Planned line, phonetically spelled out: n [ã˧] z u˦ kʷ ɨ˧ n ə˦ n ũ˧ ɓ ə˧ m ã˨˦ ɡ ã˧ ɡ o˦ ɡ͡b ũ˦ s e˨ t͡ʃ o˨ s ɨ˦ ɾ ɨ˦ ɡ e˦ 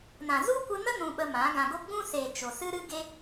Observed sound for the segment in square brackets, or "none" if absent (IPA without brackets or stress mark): ã˨